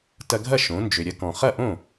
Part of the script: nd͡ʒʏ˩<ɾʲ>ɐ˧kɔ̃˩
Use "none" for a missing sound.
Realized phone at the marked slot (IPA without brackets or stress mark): ɾʲ